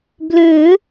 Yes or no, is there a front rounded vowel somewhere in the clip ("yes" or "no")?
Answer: yes